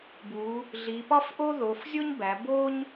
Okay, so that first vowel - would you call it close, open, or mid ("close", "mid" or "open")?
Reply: close